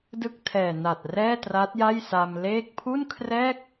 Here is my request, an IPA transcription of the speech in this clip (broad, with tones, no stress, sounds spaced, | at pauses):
d ɯ˥˩ k̚ tʰ ɛː˨˩ n a˨˩ t̚ r ɛː˥˩ t r a˦˥ t̚ j a˥˩ j s a˧ m l eː˥˩ k̚ pʰ u˥˩ n kʰ r ɛː˥˩ k̚